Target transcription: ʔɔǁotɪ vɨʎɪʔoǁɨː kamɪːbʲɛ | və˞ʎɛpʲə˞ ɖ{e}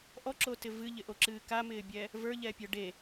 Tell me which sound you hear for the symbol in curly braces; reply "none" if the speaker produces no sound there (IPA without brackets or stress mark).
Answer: e